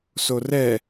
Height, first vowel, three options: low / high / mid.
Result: mid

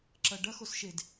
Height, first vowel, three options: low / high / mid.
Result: low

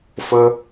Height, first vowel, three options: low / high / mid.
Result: mid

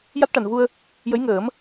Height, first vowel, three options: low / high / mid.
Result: low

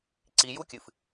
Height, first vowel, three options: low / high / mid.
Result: high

